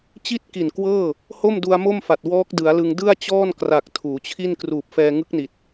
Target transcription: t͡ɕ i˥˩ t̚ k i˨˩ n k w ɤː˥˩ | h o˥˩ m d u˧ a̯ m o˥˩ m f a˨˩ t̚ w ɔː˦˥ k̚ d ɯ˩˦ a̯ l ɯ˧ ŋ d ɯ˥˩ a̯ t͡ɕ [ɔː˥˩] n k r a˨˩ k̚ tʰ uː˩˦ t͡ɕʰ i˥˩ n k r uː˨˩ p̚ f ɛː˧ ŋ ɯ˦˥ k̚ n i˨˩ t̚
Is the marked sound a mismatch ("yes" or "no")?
no